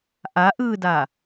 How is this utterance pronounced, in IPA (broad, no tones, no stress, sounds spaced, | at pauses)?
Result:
ʔ a ʔ ɯː d a